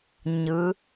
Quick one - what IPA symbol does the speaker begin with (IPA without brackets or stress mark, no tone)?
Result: ɲ